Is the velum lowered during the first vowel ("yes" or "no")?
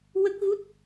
no